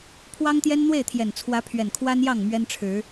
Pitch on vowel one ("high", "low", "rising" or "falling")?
high